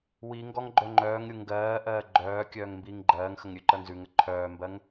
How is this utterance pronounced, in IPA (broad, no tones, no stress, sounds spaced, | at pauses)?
w i ŋ ɡ ɔ ŋ ɡ͡ǃ œ ŋ͡ǃ œː ŋ ɾʲ u ŋ ɡ ɜː ʔ ɜː ɡ͡ǃ œː kʲ œː ŋ m b iː ŋ ɡ͡ǃ ɜː ŋ x ə ŋ ɾʲ ʉ ǃ ɜ ŋ z ʉ ŋ ə ǃʰ œː m b ɜ ŋ